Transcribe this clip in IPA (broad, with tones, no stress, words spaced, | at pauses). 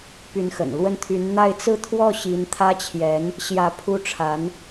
py˧˥nxə̰˨˩n lwə˥˩nt̪ʰy˧˥n n̪a˥˧ɪ̯ t͡sɹ̩˥˧t̪ʰwɔ˥˩ ɕi˧˥nt̪ʰä˥t͡ɕʰjɛ˧˥n | ɕjä˧˥ pʰu˥ʈ͡ʂʰa˧˥n